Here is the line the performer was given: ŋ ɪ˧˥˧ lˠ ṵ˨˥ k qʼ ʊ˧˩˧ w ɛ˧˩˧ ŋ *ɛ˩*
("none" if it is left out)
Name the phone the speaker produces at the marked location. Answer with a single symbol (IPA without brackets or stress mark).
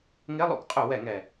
ɛ˩